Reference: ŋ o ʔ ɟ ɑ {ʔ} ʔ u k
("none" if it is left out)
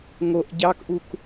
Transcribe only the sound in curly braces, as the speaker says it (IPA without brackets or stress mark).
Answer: k